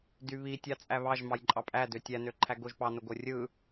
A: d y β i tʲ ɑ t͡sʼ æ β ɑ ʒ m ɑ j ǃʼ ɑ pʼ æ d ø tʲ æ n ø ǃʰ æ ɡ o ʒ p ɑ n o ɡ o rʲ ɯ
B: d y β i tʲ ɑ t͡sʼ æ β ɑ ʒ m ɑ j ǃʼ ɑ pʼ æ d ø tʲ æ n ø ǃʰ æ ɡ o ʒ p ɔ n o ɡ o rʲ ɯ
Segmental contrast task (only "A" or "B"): A